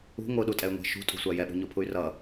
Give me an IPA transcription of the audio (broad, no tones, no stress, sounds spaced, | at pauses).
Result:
ṳ ŋʷ ɯ ɗ u tʼ ɛ y̯ ŋʷ ɛ̤ ʃ ṳ tʼ ṳ sʷ a j ɛ ɓ ṳ ɲ o pʰ u y̯ r ʌ